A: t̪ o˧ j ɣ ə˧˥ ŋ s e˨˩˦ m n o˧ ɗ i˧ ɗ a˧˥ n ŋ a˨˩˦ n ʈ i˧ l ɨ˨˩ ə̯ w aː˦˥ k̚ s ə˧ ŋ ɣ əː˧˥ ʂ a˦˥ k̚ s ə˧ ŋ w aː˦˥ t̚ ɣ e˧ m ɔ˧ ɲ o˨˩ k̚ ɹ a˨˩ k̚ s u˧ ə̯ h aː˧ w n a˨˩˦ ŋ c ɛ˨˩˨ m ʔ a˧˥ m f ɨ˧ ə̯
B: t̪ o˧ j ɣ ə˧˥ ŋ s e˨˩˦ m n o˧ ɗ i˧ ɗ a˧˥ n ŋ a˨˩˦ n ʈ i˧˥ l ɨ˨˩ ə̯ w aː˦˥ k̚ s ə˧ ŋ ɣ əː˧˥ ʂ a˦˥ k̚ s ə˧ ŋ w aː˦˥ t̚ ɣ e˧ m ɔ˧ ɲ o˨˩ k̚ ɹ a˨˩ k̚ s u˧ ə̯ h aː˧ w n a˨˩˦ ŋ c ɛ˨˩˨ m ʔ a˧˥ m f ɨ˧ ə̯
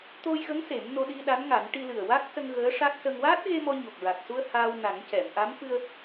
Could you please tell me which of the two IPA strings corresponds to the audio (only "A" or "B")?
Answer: A